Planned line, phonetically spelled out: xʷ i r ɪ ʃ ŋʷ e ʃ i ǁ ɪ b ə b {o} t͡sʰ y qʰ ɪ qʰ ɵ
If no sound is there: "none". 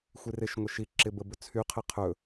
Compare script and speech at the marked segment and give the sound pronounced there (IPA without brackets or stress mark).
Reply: ɵ